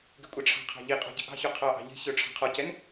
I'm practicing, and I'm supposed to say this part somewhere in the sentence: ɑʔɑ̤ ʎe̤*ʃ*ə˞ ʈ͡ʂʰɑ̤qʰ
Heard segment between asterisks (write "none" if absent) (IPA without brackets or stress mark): ç